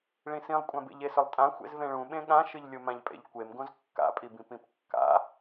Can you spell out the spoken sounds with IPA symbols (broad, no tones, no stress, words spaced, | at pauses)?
ɭĩsĩlˠkʷʼã bḛʎesɵlˠtʼã xʷḛzvẽɭũɓẽ ɠãʃɨʎlʲomãʎ pʼḛʎkʷemɡõz kːa̰pʼibĩpĩp kːa̰